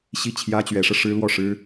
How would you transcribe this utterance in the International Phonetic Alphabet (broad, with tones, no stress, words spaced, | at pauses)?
ɕi˥˩t͡ɕʰjä˥t͡ɕɥɛ˧˥ʂɤ˧ ʂɻ̩˥lwɔ˥˩ʂɻ̩˥